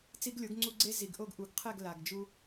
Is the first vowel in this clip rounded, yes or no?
no